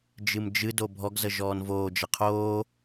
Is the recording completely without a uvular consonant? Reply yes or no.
no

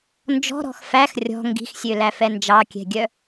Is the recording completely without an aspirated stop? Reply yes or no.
yes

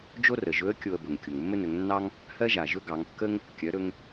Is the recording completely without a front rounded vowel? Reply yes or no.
yes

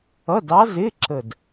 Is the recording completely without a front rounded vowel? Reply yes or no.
yes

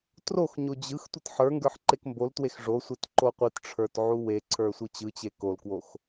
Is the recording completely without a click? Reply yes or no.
no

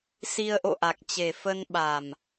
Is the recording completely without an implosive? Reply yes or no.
no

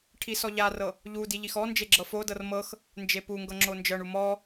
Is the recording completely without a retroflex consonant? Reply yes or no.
no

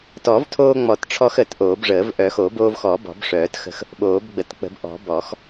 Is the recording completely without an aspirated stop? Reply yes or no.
no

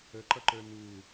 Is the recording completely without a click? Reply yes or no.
no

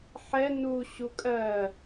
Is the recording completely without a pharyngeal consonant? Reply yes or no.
no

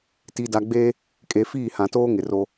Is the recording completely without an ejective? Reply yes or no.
no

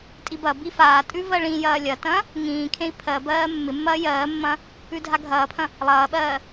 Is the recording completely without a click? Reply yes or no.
yes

